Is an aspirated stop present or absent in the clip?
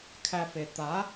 present